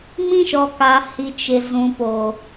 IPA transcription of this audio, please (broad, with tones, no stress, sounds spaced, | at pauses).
m ĩ˦ ʃ ɔ˨ k a˨ h i˨ t͡ʃ ɪ˨ z ũ˨ p o˨